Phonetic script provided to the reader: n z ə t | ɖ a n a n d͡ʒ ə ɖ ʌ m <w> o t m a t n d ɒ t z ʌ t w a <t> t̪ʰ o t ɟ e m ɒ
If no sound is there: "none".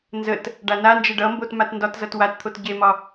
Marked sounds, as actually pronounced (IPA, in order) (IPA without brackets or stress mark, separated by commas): b, t